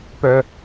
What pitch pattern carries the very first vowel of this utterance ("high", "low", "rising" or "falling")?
low